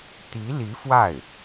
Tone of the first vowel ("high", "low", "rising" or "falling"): rising